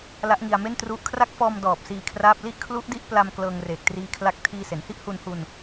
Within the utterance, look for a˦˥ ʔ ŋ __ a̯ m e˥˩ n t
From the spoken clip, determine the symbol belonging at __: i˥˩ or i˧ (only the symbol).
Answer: i˧